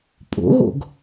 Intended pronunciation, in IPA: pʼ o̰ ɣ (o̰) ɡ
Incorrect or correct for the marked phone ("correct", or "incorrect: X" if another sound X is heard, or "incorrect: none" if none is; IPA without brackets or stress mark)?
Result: correct